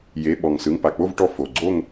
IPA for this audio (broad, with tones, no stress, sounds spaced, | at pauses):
j e˩˧˩ ɓ ɔ˩ ŋ s ɯ˩˧˩ ŋ p a˩ k͡p o˥˨ v ʈ ɔ˧˩ f o˩ ɡ͡ǀ o˥˨ ŋ